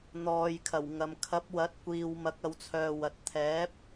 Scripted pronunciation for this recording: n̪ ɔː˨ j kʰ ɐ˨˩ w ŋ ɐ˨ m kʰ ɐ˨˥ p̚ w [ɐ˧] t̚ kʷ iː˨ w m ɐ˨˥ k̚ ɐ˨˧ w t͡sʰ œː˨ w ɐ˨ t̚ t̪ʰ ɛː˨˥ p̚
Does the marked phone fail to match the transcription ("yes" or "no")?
yes